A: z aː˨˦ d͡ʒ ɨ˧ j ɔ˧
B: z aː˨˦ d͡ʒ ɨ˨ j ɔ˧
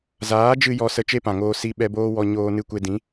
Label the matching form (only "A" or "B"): A